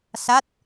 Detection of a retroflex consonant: absent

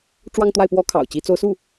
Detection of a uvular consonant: absent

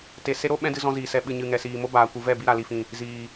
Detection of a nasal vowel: present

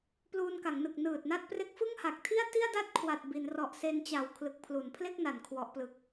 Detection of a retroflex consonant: absent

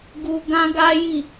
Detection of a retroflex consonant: absent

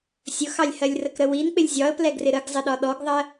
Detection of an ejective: absent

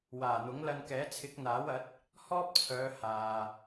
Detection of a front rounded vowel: present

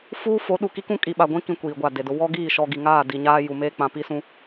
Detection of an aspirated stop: absent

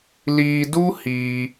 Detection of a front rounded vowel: absent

